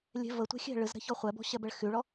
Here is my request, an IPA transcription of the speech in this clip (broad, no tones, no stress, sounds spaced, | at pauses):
lʲ ɛ̤ v ə tʷ ɛ̤ xʲ ɛ̤ ɭ ɨ z ɾ ɛ̤ ç ɔ χʷ ɛ b ɔ̤ ɕ ɛ b ɛ ɭ x y ɭ ɔ